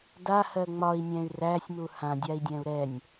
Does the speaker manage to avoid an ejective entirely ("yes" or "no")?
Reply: yes